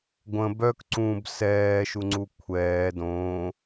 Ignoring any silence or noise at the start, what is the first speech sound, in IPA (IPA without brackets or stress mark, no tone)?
ɡʷ